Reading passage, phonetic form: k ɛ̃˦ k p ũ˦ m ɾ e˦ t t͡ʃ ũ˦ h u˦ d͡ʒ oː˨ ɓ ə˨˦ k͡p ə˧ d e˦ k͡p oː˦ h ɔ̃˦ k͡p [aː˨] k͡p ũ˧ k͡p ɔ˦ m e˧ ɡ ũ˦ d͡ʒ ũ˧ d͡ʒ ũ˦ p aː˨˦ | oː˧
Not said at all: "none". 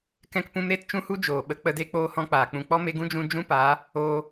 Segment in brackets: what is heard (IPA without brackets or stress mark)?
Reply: aː˨